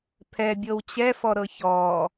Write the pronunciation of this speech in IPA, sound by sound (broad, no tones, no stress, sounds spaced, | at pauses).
pʰ ɛ bʲ ɤ w t͡ɕ ɛ f ɔ ɾ ɤ ç ɔː